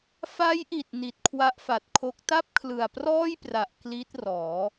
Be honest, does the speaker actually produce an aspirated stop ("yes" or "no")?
yes